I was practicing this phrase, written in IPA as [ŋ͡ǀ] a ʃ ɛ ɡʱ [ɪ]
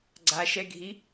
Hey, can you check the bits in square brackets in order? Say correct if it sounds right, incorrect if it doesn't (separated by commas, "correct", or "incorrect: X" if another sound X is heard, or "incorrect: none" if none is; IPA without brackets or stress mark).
incorrect: ɡ͡ǀ, incorrect: i